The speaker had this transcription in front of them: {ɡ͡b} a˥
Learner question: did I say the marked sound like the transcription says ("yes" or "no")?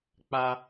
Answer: no